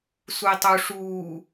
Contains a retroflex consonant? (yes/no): yes